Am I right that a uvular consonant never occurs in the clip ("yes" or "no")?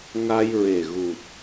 yes